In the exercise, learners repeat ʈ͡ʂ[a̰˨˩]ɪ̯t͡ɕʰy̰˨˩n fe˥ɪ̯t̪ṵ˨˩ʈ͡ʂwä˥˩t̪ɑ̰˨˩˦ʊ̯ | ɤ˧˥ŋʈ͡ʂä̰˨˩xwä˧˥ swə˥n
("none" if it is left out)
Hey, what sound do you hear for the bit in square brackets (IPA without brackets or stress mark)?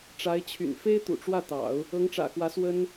a˧˥